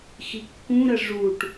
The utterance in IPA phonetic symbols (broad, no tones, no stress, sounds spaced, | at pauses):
x i kː ũ ɾ ə ʐ u ʈ